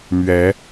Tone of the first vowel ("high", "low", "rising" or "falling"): rising